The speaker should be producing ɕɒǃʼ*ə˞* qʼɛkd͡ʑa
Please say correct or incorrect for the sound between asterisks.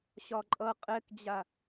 incorrect